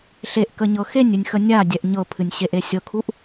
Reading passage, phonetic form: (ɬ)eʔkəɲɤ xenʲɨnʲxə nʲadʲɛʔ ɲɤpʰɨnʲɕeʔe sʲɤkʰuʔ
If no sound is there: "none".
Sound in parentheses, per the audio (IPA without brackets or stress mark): ɬ